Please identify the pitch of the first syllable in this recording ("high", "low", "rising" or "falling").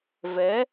rising